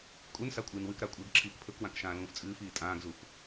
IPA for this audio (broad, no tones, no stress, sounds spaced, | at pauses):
kʼ u n s a kʷʼ ɨː n w ɨ k ɾ a kʷʼ ɨː ɡ ǁʰ iː k pʰ ɵ k w ã k ʃ ãː l ũː f t͡sʼ ɨː f iː tʼ ãː ɡ z u f